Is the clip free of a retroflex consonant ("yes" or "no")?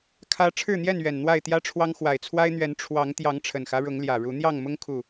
no